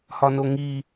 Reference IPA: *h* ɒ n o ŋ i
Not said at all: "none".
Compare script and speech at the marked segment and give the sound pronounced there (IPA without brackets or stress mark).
h